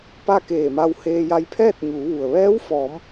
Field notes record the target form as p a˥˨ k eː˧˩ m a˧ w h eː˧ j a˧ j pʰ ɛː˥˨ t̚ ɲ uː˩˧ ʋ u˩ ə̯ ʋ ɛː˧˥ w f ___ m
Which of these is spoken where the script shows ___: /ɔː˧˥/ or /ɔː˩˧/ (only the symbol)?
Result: ɔː˩˧